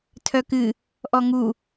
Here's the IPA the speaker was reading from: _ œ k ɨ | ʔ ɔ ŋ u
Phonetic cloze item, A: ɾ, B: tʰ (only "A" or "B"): B